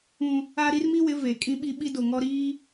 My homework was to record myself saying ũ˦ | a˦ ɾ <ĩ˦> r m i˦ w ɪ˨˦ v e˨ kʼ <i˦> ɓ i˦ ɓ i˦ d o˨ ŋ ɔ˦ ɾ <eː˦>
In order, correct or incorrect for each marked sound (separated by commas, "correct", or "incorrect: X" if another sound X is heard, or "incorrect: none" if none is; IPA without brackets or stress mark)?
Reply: incorrect: i˦, incorrect: ĩ˦, incorrect: iː˦